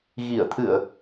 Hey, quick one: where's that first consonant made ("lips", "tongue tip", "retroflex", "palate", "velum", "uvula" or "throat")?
velum